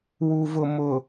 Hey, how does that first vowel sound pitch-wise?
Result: low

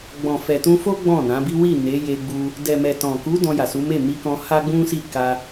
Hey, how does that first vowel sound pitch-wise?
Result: low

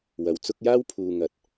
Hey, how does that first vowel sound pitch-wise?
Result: low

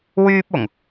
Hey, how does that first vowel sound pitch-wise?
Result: high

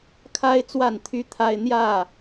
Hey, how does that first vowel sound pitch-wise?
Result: high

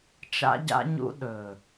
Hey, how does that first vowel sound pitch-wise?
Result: high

